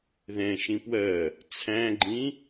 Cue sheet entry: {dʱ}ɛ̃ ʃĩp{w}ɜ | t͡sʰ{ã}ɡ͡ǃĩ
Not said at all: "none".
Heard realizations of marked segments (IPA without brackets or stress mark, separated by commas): ð, w, æ̃